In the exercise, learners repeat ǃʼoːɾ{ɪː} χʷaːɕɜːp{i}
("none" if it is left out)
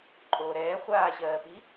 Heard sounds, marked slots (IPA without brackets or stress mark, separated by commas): ɛː, i